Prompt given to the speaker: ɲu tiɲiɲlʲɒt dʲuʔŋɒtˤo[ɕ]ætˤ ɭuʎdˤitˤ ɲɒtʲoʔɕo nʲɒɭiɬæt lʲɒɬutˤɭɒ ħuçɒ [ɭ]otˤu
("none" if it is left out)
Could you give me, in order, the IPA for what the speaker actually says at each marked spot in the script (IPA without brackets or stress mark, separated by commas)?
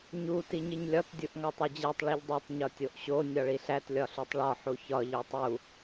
d͡ʑ, ʎ